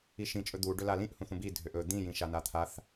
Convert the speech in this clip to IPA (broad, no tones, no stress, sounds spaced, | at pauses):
i ʃ ĩ t͡ʃʼ ɵ d̪ u ɖ ɵ l a l ĩ ʔ h ũ θ ũ b i dʱ ø ʔ ɵ d̪ ĩ j ĩ ʃ a n a t̪ʰ a θ